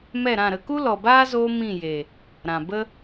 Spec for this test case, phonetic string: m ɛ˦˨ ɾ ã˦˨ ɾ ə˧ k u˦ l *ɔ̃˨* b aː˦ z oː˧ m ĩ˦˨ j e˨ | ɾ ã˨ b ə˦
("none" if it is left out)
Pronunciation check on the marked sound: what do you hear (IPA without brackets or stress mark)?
ɔ˨